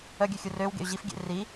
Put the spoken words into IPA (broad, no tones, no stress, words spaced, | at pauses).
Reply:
œɡʲøxʲu røwɡḛy̯ ʑifɡʲḛ ri